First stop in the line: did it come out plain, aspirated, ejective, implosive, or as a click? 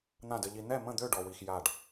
plain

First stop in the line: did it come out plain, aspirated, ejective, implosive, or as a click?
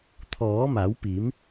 aspirated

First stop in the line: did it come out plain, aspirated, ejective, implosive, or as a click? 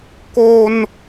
plain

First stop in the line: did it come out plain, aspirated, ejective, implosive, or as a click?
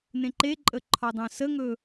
click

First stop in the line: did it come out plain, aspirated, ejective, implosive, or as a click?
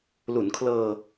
aspirated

